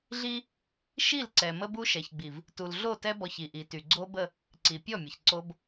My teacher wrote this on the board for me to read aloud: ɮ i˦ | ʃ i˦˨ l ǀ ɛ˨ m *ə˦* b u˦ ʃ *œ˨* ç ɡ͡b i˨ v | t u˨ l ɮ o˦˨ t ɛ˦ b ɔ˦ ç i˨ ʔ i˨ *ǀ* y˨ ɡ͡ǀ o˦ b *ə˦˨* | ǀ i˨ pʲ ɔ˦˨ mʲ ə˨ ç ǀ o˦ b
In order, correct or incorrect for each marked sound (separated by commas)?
correct, incorrect, incorrect, correct